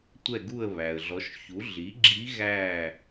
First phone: tʷ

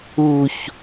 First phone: u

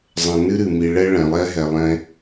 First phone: zˤ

